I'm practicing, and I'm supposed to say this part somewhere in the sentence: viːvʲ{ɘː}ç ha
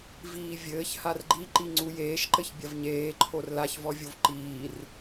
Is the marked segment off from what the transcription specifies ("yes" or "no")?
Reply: no